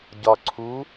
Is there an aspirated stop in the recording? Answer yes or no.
yes